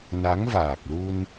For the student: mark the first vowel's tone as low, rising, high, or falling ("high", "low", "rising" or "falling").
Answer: rising